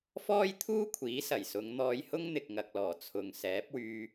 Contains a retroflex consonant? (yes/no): no